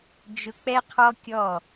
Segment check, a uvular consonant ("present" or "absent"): present